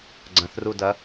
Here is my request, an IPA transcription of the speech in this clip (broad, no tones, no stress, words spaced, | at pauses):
ɡ͡ǀɐ̃θrudɐ